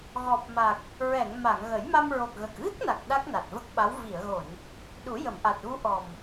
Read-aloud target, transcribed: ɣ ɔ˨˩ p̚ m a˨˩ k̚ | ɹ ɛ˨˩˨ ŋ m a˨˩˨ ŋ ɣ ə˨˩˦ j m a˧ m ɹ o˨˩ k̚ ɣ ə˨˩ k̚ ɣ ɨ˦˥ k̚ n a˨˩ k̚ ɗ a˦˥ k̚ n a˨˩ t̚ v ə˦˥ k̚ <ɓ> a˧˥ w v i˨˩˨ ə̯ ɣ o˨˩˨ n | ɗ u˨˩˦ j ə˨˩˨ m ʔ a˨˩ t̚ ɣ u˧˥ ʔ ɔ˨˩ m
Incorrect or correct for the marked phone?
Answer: correct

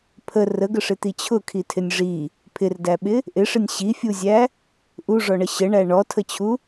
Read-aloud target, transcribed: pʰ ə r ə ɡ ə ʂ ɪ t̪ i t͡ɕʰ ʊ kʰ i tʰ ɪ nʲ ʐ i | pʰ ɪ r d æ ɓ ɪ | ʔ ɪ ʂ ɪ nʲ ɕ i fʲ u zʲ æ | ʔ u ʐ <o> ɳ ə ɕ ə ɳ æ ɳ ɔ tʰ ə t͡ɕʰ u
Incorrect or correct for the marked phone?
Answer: incorrect: ɔ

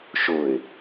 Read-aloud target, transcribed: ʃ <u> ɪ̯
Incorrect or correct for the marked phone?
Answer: incorrect: ʊ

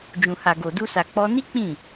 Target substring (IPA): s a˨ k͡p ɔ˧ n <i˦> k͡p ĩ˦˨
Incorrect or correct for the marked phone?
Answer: correct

